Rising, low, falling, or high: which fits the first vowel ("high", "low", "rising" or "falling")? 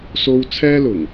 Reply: high